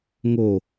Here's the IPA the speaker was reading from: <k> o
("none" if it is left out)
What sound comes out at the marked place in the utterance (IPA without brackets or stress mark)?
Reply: ŋ